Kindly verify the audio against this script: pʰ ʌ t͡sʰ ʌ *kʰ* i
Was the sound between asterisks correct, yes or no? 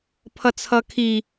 yes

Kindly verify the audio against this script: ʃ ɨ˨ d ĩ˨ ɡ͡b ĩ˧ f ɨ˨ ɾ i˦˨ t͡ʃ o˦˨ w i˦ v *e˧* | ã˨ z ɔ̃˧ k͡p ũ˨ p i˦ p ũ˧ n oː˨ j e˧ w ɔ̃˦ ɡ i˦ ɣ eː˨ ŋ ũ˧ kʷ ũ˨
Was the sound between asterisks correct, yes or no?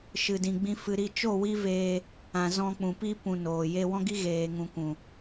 no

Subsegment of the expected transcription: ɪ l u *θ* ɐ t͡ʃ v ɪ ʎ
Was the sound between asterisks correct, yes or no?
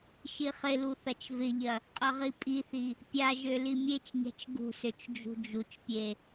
yes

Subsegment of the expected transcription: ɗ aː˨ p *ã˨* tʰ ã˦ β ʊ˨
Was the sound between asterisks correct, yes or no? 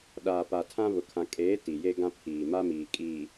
no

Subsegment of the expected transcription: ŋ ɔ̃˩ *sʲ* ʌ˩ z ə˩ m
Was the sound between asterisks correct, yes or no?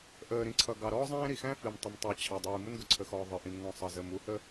no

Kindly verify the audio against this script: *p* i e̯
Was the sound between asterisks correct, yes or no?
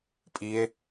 no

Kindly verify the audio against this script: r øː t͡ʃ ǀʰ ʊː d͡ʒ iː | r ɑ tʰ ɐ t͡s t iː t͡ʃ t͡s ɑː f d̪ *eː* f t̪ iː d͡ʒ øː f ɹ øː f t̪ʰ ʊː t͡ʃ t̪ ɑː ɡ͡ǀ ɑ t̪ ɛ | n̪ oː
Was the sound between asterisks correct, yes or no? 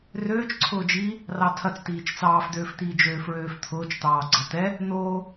no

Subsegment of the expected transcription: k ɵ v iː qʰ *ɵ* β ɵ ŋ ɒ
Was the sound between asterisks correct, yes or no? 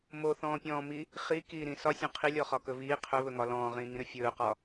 yes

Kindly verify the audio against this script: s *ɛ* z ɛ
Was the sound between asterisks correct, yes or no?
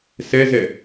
yes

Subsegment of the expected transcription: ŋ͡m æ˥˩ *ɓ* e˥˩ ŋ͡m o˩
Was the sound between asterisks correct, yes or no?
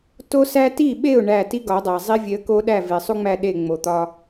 no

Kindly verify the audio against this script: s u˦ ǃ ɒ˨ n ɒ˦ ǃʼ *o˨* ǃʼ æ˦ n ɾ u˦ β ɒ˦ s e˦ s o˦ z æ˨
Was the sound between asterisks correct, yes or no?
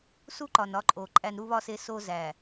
yes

